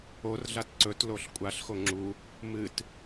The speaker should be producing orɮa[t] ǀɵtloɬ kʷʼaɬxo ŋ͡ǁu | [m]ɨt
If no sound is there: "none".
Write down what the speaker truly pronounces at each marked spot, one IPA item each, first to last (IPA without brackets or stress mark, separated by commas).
t, m